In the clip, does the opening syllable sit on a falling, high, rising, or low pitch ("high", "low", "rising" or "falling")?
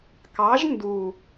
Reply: rising